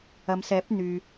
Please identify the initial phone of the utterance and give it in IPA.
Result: ɐ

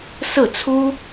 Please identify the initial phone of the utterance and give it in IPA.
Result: s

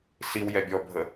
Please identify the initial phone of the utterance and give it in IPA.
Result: s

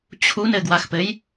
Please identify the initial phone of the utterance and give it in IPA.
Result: t͡ɕʰ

